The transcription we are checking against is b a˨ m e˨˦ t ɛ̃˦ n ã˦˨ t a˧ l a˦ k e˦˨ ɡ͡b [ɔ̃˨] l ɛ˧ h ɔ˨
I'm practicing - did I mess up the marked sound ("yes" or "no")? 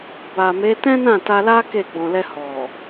no